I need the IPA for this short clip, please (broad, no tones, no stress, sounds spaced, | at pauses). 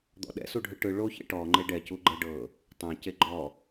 d̪ ɔ̰ ɗ ɛ̰ s u ɖʱ ɯ ʈ ɯ ɭ o ç ɛ̰ ʈ ɔ ŋ͡ǃ e ɖ ɛ c u ɡ͡ǃ ɛ ɖ ɤ | tˤ ẽ c e ɡ͡ǃ ɔ